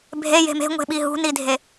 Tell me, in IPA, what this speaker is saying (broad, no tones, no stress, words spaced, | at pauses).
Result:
bʱeje̤ me̤ŋʷe̤ɓi ɦṳnidʱe